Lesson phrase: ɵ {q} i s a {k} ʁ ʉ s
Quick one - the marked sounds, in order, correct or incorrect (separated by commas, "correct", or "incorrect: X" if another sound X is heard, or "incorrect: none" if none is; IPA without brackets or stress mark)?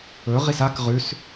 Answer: incorrect: ʁ, correct